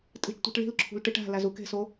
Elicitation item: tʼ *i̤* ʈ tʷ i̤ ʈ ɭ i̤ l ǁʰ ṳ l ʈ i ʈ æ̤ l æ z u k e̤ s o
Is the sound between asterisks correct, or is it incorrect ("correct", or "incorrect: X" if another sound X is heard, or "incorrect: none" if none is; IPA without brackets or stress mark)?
correct